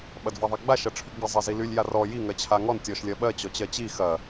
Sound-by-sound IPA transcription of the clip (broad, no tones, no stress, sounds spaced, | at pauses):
ɓ ɐ d v a ðˤ a ɡ͡b a ʃ ɐ ʈ͡ʂʰ y ɡ͡b i zˤ ɜ z i l y lʲ j a r ɔ j i ŋ ɜ t͡ɕʰ a ŋ ɔ n tʲ ɔ ʃ lʲ ɜ ɓ ɜ t͡ɕ ɔ t͡ɕ ɜ t͡ɕ i x ɐ